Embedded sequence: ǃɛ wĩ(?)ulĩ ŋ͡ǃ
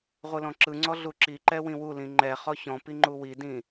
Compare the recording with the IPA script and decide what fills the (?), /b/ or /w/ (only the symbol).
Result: w